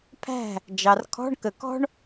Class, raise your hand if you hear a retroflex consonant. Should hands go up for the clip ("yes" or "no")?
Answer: yes